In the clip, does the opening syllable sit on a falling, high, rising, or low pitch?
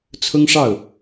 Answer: high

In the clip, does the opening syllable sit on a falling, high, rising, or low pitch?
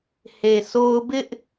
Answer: low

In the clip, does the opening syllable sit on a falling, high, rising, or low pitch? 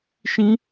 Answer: high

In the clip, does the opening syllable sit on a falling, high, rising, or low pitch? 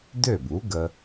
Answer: falling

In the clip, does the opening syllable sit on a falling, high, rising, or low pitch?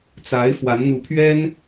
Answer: rising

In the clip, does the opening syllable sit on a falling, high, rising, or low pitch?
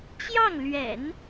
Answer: falling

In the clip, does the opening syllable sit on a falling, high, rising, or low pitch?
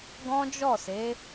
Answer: high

